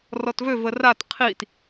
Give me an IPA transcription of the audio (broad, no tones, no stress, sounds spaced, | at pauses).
r ɔ t v ø v ə r a t qʰ i t